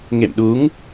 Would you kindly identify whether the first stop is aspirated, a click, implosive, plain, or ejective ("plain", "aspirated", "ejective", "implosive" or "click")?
implosive